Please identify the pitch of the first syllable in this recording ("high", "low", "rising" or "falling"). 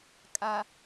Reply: low